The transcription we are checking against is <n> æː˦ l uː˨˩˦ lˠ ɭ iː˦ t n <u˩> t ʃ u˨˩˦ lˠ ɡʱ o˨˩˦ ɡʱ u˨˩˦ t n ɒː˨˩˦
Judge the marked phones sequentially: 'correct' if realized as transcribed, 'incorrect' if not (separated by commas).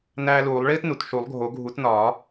correct, correct